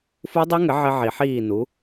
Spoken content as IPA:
f u˦˥ dˤ u˦˥ ŋ ɘ˩˥ ʕ ɘ˦˥ ʕ i˨˩˦ ħ iː˥˩ n u˩˥

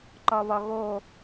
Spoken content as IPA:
ǃ ɒ β ɒ ɣ o

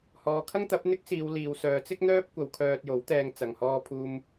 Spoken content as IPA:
h ɔː˨ kʰ ɐ˥ ŋ t̪ ɐ˨˥ p̚ n̪ ɪ˥ k̚ s iː˨˧ w l iː˨ w s œː˨˧ t͡s ɪ˥ k̚ n̪ œː˥ p̚ kʷ ɐ˨ w kʰ œː˧ t̚ j o˨˥ w t̪ ɛː˧ ŋ t͡s ɐ˨ ŋ h ɔː˧ pʰ uː˧ m

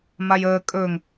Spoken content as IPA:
m a j əː kʼ ɵ ŋ

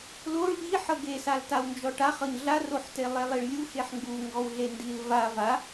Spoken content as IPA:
l o ɭ ʎ i ħ ɤ ɡ e s a l t a w n d͡ʒ ɔ ʈ a χ ɤ ɲ ɮ a r o ħ t e lˠ e lˠ i ɭ lʲ u x e ħ ŋ ɡ u ŋ ɡ ɔ w ɮ e n d i l v a v a

